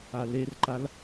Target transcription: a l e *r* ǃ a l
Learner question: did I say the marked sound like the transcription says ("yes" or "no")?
yes